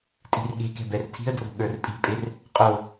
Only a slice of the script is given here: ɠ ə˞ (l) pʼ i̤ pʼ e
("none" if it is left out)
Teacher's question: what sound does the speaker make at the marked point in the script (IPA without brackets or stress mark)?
r